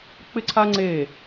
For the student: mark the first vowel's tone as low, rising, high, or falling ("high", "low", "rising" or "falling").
high